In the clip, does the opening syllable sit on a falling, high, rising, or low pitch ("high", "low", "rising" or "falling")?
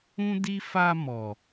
high